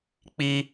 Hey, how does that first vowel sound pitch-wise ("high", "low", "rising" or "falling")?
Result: high